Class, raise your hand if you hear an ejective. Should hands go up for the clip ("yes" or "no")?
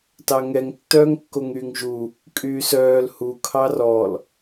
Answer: yes